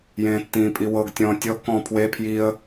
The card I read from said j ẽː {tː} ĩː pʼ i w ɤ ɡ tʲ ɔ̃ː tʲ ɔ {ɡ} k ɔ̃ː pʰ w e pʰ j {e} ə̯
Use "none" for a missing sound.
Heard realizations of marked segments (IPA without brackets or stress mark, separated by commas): tː, ɡ, i